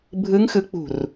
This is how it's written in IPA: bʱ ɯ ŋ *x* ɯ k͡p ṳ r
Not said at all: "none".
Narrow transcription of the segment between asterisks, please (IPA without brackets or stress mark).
x